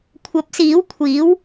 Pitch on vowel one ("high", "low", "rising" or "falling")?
rising